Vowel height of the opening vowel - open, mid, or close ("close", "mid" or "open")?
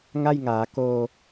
open